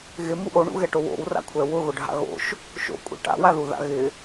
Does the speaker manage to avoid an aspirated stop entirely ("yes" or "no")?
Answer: no